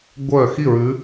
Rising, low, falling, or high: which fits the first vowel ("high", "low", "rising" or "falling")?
falling